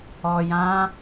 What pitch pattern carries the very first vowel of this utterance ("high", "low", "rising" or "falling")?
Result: low